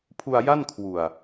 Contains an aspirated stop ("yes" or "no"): yes